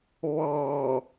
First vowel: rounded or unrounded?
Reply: rounded